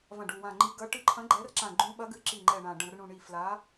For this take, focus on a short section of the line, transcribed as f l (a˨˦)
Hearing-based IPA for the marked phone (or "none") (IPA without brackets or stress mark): a˨˦